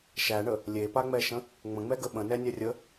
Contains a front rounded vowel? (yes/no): no